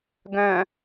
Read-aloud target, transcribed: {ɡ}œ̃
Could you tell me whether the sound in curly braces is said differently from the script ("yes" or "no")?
no